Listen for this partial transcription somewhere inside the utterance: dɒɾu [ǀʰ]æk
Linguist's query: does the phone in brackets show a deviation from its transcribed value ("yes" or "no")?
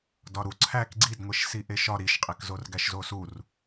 no